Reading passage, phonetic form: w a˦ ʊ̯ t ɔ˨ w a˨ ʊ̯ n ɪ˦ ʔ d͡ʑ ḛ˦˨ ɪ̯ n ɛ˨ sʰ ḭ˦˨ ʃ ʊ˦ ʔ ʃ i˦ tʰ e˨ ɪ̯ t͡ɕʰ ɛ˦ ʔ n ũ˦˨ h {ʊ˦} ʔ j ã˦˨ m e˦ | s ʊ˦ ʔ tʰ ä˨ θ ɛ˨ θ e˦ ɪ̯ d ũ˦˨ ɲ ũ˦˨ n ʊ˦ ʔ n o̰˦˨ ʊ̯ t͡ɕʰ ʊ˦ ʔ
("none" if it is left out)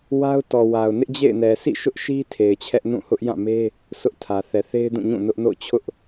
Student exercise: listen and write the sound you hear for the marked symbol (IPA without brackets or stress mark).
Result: ʊ˦